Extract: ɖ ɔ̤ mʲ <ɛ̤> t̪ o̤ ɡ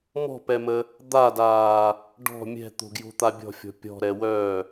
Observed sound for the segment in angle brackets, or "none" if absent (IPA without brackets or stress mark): ɛ̤